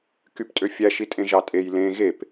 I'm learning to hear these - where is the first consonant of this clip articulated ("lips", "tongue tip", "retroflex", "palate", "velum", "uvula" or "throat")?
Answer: velum